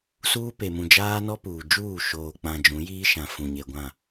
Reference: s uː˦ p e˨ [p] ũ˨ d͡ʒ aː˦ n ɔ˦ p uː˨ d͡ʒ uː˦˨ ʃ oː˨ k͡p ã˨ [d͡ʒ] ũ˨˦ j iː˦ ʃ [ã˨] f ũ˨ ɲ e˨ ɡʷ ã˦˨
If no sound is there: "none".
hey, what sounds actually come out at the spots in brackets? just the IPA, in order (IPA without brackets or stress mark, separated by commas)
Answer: m, d͡ʒ, ã˨